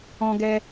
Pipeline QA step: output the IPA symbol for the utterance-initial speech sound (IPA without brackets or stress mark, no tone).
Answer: ɔ̃